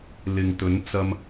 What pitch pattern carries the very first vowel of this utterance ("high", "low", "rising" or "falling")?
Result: low